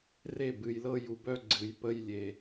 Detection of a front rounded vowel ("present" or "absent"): present